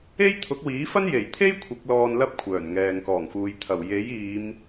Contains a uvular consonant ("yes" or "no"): no